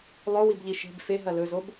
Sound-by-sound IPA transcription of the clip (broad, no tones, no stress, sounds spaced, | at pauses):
lˠ o w i b ʎ i ʃ e̤ b f e ɦ ɐ l ɵ z o b